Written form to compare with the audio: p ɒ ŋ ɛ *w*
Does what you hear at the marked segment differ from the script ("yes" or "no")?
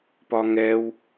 no